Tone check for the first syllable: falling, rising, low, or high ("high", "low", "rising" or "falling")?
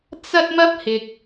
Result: high